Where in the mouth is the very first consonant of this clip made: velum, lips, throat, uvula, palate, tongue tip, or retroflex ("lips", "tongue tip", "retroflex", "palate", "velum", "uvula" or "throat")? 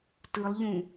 tongue tip